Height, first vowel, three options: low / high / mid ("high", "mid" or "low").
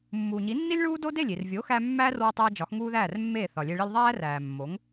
high